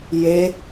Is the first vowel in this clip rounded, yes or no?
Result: no